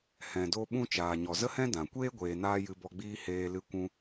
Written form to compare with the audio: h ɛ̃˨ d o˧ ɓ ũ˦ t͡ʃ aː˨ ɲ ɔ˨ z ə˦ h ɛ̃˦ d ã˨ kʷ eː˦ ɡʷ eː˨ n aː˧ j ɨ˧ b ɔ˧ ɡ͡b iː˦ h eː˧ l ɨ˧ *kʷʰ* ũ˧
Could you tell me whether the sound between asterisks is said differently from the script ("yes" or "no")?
yes